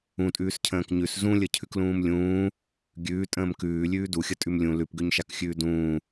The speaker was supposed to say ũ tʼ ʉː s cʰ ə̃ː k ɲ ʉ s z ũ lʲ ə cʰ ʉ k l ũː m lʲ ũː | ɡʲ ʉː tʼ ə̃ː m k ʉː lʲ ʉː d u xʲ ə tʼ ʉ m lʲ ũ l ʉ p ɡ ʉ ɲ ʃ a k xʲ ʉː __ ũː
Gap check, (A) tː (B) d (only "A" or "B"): B